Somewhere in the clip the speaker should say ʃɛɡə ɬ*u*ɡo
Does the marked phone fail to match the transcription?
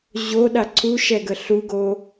no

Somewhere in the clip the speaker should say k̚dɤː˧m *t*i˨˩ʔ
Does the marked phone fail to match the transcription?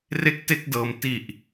no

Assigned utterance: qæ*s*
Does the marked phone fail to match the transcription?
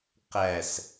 no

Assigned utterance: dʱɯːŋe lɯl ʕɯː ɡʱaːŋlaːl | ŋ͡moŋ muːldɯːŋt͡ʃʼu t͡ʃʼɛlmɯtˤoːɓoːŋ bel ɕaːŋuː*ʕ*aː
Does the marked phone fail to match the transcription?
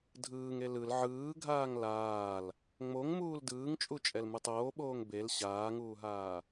yes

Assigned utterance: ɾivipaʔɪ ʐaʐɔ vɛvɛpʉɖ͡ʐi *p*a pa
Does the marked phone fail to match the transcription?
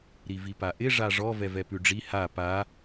yes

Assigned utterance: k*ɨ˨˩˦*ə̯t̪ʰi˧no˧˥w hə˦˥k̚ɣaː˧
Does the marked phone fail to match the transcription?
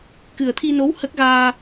yes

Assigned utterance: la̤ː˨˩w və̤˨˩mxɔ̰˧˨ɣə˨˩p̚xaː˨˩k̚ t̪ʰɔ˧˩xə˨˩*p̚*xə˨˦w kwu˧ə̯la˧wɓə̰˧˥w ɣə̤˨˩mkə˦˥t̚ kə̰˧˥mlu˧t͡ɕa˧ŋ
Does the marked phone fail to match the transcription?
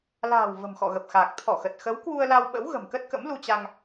yes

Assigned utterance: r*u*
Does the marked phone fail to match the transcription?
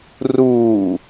yes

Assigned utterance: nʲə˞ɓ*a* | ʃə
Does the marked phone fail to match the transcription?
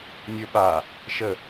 no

